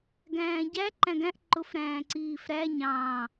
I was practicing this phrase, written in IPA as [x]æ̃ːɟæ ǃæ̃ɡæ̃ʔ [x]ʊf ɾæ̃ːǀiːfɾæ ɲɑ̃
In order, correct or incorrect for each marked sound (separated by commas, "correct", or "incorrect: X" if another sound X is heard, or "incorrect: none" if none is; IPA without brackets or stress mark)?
incorrect: ɡ, incorrect: ǃ